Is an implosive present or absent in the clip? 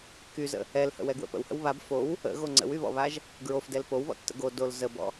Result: absent